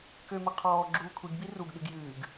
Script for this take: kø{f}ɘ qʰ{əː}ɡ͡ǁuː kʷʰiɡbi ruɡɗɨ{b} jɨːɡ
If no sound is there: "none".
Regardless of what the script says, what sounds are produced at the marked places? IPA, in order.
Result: m, ɔː, ɡ

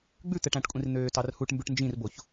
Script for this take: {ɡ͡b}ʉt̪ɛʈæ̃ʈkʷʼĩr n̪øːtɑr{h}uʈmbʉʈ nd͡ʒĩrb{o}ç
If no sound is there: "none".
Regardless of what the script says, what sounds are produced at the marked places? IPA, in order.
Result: ɡ͡b, h, o

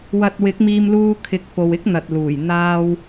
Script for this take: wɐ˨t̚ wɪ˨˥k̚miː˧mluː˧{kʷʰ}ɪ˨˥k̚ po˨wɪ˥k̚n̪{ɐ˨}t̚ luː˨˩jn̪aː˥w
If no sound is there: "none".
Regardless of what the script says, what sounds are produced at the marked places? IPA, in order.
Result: kʰ, ɐ˨

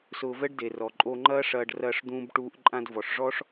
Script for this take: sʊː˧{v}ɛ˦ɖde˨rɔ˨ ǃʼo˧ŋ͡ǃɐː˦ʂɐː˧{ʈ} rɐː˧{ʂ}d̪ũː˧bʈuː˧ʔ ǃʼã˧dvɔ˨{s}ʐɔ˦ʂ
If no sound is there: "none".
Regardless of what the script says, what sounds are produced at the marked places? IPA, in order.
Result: v, ɖ, ʂ, ʂ

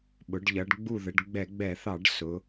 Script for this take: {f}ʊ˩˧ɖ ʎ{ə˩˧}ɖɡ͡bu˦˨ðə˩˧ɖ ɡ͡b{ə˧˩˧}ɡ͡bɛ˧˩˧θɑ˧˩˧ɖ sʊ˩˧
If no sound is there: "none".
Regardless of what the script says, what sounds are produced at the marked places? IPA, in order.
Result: ɓ, ʌ˩˧, ɛ˧˩˧

